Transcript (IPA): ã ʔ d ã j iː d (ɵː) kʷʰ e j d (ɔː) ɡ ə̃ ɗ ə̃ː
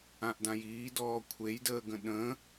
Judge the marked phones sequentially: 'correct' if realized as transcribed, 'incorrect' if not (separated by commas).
incorrect, incorrect